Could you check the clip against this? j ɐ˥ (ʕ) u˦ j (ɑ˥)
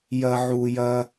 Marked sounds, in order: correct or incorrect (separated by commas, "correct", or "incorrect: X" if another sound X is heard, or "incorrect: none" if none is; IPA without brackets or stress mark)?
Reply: correct, incorrect: ɐ˥